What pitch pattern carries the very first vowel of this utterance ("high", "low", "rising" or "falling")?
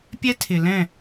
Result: high